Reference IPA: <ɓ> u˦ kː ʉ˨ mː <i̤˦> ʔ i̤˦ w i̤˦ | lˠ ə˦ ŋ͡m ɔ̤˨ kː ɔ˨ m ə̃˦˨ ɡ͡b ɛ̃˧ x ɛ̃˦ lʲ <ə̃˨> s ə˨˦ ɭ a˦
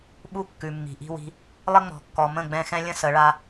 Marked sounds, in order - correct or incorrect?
correct, incorrect, incorrect

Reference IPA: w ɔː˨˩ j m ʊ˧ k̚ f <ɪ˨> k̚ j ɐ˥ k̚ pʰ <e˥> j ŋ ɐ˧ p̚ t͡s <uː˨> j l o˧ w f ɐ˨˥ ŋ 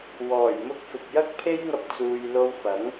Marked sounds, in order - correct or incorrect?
correct, correct, correct

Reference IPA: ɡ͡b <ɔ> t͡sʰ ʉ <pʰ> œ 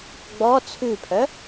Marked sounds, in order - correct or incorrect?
correct, correct

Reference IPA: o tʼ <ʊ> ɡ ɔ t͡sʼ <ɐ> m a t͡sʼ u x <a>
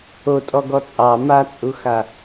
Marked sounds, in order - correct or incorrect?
incorrect, incorrect, correct

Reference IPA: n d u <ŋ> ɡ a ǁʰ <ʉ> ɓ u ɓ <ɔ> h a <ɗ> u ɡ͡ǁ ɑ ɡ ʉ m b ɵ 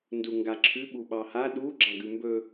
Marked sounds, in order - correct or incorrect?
correct, correct, incorrect, correct

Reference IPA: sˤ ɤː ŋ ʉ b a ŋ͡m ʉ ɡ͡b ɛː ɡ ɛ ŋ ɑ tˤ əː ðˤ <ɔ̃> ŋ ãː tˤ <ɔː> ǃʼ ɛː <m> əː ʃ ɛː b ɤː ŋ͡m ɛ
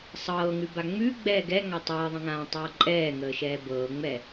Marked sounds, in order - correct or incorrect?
incorrect, incorrect, incorrect

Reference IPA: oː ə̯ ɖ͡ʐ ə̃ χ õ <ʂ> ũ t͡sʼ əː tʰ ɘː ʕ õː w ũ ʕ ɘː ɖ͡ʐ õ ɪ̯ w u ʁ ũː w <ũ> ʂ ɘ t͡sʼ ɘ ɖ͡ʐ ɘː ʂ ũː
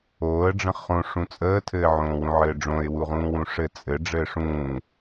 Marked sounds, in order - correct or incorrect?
correct, correct

